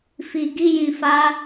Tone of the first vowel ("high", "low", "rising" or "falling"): low